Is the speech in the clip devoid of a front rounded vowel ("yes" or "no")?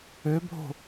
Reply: no